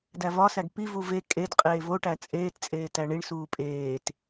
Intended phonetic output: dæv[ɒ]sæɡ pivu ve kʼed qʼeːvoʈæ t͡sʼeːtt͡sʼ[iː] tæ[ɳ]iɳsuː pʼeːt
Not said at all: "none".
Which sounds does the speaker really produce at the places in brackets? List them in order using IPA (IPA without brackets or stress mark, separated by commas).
ɒ, eː, ɳ